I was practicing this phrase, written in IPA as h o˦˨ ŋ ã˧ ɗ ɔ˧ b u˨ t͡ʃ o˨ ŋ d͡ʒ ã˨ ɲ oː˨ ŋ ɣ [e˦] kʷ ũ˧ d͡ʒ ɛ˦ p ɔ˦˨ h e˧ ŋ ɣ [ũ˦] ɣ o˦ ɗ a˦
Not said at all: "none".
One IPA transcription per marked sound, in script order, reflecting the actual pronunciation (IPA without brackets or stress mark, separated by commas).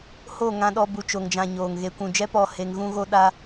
e˧, ũ˦